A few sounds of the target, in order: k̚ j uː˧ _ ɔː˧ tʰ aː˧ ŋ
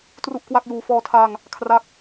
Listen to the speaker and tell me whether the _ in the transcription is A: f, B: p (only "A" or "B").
A